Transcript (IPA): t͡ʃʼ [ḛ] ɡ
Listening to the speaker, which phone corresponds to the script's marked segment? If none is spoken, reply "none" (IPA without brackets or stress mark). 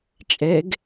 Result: e